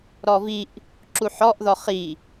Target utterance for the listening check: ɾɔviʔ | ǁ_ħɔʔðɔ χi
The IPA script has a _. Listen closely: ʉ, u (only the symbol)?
u